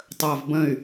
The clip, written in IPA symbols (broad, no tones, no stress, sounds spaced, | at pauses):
tˤ əː v b ə̃ y̯